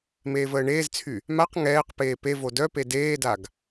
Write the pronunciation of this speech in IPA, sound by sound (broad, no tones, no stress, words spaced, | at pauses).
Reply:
meːvəːɳeːzt͡sʰy | maq ŋɛːqpeː pe vodœpe deːdaɡ